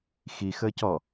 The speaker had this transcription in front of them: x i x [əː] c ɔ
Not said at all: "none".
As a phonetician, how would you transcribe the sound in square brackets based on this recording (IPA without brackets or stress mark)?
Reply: əː